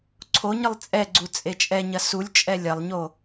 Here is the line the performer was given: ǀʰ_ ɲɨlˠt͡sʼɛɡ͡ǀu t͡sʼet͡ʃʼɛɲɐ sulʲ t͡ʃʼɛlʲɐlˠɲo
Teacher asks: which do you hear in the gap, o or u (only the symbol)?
o